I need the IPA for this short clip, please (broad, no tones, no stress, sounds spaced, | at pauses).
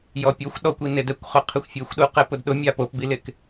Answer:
j ɔ pʲ o xʷ ɗ ɔ kʷ i n ɪ d ɛ kʷ χ ʊ qʰ ɪ xʷ fʲ e xʷ ɗ u q ɛ p ʊ d ɗ ʊ mʲ a p o p b i l ɪ k